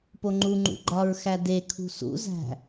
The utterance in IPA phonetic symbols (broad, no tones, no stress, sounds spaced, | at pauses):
p o ŋ͡ǃ u ŋ͡ǃ ṵ ɡ͡ǃ ɒ ɹ x æ d e kʰ ṳ s ṵ z æ̤